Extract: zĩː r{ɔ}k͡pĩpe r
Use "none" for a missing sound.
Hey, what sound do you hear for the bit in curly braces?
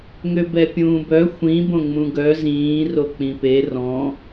o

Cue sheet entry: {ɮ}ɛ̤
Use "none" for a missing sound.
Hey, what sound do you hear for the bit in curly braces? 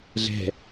ɮ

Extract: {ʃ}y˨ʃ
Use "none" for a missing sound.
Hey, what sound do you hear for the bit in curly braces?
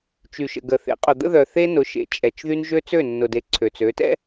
t͡ʃ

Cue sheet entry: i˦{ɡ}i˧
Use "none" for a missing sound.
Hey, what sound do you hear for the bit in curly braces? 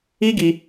ɡ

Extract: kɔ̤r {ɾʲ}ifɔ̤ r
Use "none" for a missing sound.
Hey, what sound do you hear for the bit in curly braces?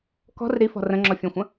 ɾ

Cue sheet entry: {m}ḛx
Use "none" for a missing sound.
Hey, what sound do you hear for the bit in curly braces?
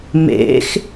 m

